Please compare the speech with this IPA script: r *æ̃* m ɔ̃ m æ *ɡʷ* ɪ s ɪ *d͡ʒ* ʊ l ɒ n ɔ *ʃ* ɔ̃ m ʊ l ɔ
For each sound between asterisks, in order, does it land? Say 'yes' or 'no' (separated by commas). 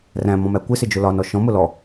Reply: yes, no, yes, yes